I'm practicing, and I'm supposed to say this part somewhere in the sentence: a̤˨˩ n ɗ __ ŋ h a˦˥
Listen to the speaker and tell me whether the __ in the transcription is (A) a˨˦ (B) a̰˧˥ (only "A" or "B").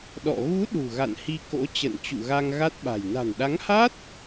A